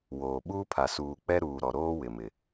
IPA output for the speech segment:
w oː˨ ɓ uː˦ pʰ a˨ s uː˨ k͡p ɛ˦ ɾ uː˨ ɾ ɔ˨ ɾ oː˦ w ɪ˨ m ɪ˨

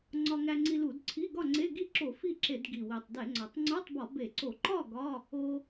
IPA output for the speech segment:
ŋ͡ǀ ɒ˧ ŋ æ˧ ŋ͡ǀ i˧ l u˧˩˧ d ǀʰ i˧˥˧ ɡ ɒ˥˨ ŋ͡ǀ e˧˥˧ ɡ i˥˨ ǁ o˧˩˧ f i˥˨ ǁ e˧˩˧ d ɡ i˨˩ w i˨˩ tˤ d e˧˩˧ ŋ͡ǀ ɒ˨˩ tˤ ŋ͡ǀ u˧˥˧ tˤ b ɒ˧˩˧ b e˧˩˧ ǀ o˧˩˧ ǃ ɒ˥˨ ɡ ɒ˧˥˧ | o˧

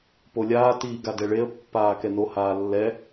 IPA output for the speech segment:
p o lʲ aː t iː ɡ a d ɛ ɭ e ə̯ pː aː k ɛ n o h aː lː ɛ

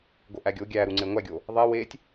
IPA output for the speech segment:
ɡ o ʔ æ ɡʲ o ɡʲ æ ɾ u ŋ͡ǀ e ŋʷ æ ɡʲ o | ðˤ e w e tʲ

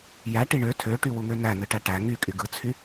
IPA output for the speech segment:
j æ ʈ i ɳ ø tʰ ø ʈ y w u ŋ ø n æ n ɯ ʈ æ ʈ æ ŋ y kʼ y ɡ ɯ t͡sʰ y

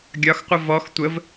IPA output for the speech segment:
ɡʲ ɒ x qʷ ə v ɔ x tʷ ə v

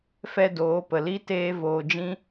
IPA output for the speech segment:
f ɛ˦ d oː˨˦ p ə˨ l i˧ t eː˧ v oː˨ d͡ʒ ĩ˧

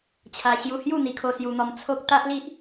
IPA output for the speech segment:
t͡ɕʰ a˧ ɕ j u˧ h j u˥˧ n̪ i˧ kʰ o˧ s j u˧ n̪ ɔ˧ m t͡sʰ o˦ k̚ t̪ a˦ ʔ l i˦ ʔ

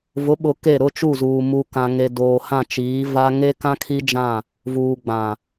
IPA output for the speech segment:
v ʊ˨˦ ɓ ʊ˨ k e˦˨ ɾ ʊ˦ t͡ʃ u˦˨ z uː˨ m u˨ k ã˨ ŋ e˨ d oː˨ h ã˦˨ t͡ʃ iː˨˦ v a˦ ŋ e˦ k ã˦ kʰ i˦ d͡ʒ ã˦˨ | v uː˨ ɡ͡b ã˨

